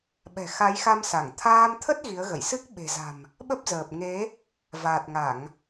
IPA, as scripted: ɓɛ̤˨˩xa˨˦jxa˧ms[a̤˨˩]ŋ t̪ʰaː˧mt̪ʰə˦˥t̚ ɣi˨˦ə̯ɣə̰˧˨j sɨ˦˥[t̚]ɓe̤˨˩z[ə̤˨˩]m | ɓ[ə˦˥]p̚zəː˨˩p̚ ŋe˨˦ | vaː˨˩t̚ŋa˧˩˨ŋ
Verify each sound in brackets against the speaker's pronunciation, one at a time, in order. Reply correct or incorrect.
incorrect: a˧˩, incorrect: k̚, incorrect: a̤˨˩, correct

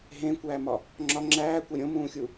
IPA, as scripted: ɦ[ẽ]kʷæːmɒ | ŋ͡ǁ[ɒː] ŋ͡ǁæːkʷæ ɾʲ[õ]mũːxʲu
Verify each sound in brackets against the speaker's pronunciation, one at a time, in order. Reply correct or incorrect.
correct, incorrect: ɒ, correct

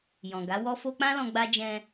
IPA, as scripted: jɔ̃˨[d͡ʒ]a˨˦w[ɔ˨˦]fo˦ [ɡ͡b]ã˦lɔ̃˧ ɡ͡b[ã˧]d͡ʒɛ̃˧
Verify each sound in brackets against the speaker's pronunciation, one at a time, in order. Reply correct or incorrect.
incorrect: ɡ, incorrect: ɔ˦, incorrect: k͡p, incorrect: a˧

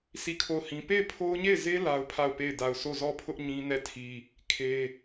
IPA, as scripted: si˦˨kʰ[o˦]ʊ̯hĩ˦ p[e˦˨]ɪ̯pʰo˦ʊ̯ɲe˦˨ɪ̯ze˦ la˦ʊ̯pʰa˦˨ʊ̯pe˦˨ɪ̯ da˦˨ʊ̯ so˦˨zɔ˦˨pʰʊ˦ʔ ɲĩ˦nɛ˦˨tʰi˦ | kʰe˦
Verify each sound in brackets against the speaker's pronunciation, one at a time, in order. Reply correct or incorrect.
incorrect: o˦˨, correct

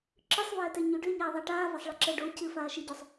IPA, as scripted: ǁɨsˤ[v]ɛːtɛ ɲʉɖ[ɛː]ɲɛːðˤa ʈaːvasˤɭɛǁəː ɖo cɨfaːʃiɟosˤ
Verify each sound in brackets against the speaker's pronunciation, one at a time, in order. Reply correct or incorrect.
correct, incorrect: ʏː

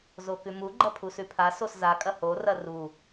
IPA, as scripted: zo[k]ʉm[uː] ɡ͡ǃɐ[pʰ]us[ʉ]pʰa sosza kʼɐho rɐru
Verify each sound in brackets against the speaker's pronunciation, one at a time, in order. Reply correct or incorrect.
correct, incorrect: u, correct, correct

